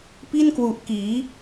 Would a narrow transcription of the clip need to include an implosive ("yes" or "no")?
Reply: no